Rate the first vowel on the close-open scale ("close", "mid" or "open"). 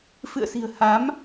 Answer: close